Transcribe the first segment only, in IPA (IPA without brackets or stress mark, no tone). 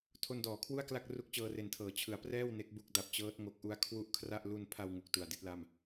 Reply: tʰ